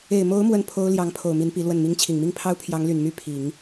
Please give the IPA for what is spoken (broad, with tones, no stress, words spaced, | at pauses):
e˨˩ɪ̯mo˧˥ʊ̯ mwə˥˩npʰo˥ʊ̯ ljɑ˧˥ŋpʰo˨˩ʊ̯ mi˧˥npi˧˥lwə˥˩n mi˧˥ŋt͡ɕʰi˨˩ŋmi˥˩ŋpʰɑ˥ʊ̯ pʰjɑ˧˥ŋly˨˩nmy˥˩ pʰi˨˩˦ŋ